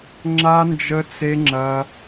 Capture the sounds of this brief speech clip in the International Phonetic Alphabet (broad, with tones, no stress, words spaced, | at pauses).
ŋ͡ǁa˦nd͡ʒə˦t͡se˦ŋ͡ǁɐ˦